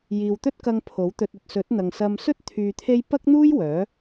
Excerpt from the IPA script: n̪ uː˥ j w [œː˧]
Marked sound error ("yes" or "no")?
yes